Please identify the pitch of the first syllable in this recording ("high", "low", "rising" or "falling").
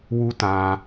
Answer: high